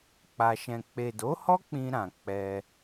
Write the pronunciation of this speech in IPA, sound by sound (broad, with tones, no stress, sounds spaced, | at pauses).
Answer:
k͡p a˧ ʃ ɛ̃˧ k͡p e˨ d o˨˦ h ɔ˦ k͡p ĩ˧ ɾ ã˨ k͡p ɛ˧